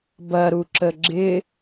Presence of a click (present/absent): present